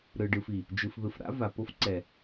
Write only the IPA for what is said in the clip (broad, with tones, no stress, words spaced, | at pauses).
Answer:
ɾɯ˨ɖɯ˨fi˨ | d͡ʒɯ˨fðɯ˨f ɾa̰˦va˨ po˦fǀɛ˨